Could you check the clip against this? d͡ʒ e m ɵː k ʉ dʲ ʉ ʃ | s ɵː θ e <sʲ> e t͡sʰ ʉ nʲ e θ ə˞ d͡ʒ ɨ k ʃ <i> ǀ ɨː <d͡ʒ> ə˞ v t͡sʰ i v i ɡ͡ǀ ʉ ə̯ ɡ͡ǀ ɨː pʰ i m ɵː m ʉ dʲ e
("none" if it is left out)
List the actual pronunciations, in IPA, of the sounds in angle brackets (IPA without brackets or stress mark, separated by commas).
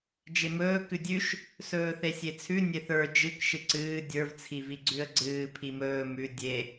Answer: sʲ, ɨ, dʲ